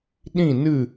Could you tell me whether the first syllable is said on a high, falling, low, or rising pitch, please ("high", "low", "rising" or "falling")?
falling